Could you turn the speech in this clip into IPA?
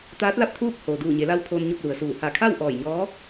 t̪ aː˧˥ t̚ l a˥˨ p̚ t̪ʰ uː˥˨ k̚ h oː˩ d uː˧˩ ɲ e˩˧ l a˧ w pʰ oː˧ n ɲ o˥˨ p̚ l u˩ ə̯ s uː˧˩ h a˧˩ kʰ a˥˨ w ʔ ɔː˧˩ j ɲ ɔː˧˥

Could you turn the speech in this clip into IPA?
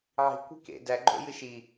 ʕ i̤ kʷ i̤ k ḛ d æ ɡ͡ǃ o̰ j ɨ ʃ i

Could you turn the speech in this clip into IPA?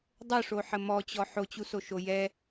dˤ o ʂ o ħ ə m ɔ t͡ɕ ɔ ħ o t͡ɕ u s o ʃ o j ɛ

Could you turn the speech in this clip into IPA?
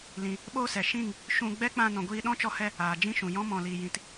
l ĩ˨ | ɓ oː˦ s ɛ˨ ʃ ĩ˦˨ ŋ | ʃ ũ˧ ɡ͡b ɛ˦ k͡p ã˧ n ɔ̃˨ ɡʷ iː˧ ɗ ɔ̃˦ t͡ʃ ɔ˧ h ɛ˧ | aː˨ d͡ʒ ĩ˦ ʃ ũ˨ j ɔ̃˦ m ɔ̃˧ l iː˧ j ĩ˧ t

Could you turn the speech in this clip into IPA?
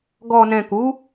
ɡ ɔ˨ n ɛ̃˨ k u˨˦

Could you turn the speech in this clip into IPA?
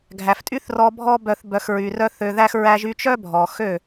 ɡʱ æ˨ f tʼ y˦ θ r ɔ˧ bʱ ɔ˦ b œ˧ θ b œ˨ x ɹ y˨ r œ˦ θ ø˧ ð æ˦ x ɹ æ˧ ʒ y˧ t͡ʃ œ˦ bʱ ɔ˨ x ø˦˨

